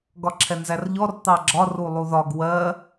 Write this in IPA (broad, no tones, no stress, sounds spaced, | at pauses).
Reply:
ɡ ɒ ǁʰ ɛ n z æ r ʎ ɔ r t̪ ɑ ɡ͡ǁ ɒ r u lˠ u ð ɒ ɡ w ɜ